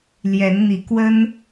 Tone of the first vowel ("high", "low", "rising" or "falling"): rising